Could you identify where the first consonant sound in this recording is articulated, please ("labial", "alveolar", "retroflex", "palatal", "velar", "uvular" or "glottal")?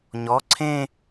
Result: palatal